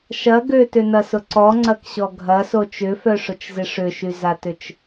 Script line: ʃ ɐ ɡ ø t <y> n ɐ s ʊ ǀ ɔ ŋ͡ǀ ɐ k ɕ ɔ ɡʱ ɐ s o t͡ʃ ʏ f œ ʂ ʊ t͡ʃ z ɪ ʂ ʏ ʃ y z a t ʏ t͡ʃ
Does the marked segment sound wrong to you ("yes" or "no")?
yes